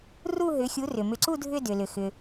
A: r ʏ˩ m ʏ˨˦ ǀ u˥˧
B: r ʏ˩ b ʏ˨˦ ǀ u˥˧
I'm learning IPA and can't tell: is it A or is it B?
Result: A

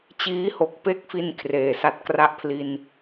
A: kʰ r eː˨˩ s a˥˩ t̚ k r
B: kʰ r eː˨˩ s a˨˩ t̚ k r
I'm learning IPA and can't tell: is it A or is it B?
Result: A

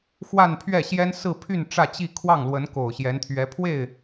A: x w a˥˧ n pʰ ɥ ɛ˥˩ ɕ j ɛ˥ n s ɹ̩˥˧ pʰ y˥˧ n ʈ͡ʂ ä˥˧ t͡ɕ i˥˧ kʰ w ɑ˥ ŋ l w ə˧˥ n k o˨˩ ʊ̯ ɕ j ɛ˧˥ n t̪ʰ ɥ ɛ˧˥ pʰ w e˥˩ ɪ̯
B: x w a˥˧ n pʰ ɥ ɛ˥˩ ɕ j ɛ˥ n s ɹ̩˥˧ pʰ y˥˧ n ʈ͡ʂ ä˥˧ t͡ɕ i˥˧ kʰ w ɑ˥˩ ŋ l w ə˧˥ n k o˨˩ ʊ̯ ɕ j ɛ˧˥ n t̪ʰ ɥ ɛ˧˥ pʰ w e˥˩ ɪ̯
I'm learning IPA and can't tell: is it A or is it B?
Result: B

